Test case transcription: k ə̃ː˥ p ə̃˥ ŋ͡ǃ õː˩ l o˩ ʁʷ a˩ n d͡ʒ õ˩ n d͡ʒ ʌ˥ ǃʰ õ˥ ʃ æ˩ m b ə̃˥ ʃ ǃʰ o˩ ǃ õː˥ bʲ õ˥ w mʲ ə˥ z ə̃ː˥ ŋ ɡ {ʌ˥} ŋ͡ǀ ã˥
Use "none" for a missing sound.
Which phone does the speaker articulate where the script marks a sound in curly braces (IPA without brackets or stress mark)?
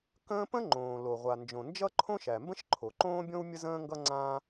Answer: ʌ˥